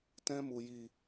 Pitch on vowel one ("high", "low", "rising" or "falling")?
high